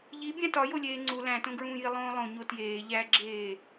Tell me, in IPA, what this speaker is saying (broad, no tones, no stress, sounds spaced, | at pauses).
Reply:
ʎ i bʲ æ̃ t ɒ j o lʲ eː ŋ͡ǀ u l æ̃ t õ ɡ ɹ ũː j i lˠ õː lˠ õ ɲ o t j eː ʎ æ ɡ͡ǁ eː